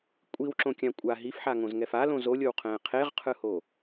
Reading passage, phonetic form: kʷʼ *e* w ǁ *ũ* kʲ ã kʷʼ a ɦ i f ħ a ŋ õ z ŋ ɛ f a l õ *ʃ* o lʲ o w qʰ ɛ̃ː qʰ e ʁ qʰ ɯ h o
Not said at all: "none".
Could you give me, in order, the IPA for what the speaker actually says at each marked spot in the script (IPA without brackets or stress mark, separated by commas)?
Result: i, õ, z